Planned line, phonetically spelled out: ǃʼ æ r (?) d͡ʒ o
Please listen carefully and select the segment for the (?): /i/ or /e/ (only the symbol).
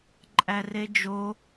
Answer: e